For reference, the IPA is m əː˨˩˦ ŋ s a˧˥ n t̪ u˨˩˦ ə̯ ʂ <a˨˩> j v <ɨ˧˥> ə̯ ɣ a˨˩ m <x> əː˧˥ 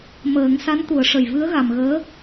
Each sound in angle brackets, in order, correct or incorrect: incorrect, correct, incorrect

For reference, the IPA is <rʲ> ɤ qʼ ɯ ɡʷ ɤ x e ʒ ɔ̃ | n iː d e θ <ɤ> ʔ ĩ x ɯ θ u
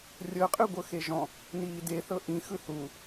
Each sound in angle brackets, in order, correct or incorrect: correct, correct

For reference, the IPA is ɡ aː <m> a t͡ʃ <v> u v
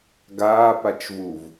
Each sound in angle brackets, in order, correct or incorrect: incorrect, correct

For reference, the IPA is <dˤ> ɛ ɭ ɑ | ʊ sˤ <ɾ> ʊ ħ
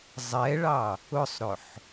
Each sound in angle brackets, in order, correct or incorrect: incorrect, correct

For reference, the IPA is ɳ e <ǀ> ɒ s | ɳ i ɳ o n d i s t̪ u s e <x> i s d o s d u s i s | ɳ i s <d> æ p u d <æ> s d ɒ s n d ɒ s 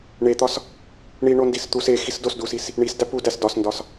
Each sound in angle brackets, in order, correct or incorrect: incorrect, correct, correct, correct

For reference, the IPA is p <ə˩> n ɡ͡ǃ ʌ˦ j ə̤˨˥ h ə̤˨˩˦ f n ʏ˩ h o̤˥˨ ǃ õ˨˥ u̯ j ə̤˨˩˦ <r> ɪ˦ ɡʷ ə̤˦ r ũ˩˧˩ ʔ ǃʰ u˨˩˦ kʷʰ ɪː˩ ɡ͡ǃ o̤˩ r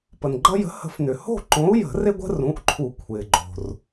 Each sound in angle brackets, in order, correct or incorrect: correct, correct

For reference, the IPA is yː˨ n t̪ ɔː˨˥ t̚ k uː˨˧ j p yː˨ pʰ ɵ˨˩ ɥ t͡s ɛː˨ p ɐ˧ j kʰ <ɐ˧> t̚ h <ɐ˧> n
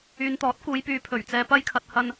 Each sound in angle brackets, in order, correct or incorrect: incorrect, correct

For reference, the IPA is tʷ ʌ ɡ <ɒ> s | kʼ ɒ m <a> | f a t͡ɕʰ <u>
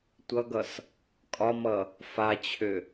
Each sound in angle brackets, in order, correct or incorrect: incorrect, incorrect, incorrect

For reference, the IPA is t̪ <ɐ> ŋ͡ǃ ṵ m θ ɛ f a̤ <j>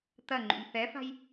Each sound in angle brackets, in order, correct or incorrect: correct, correct

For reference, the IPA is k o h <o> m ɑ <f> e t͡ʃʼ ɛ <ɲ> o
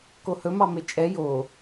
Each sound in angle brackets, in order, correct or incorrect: incorrect, incorrect, incorrect

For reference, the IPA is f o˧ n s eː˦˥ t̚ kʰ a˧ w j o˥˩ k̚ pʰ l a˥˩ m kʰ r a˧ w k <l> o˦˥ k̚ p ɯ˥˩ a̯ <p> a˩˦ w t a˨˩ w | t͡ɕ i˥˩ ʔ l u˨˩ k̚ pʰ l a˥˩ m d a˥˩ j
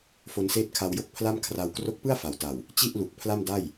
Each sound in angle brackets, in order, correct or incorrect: incorrect, incorrect

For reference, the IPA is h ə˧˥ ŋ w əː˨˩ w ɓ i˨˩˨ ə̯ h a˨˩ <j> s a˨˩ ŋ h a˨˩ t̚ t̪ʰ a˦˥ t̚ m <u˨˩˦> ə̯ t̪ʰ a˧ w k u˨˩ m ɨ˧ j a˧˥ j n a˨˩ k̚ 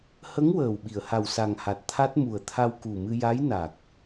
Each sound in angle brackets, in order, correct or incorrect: incorrect, incorrect

